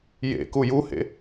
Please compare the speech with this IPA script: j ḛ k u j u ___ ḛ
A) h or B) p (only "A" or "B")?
A